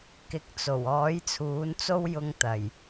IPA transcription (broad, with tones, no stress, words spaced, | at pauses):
kɪ˨˥k̚t͡so˨˩w ɔː˨˥jt͡sʰuː˨˥nt͡so˥wjʊ˧ŋ t̪ɐ˨˩j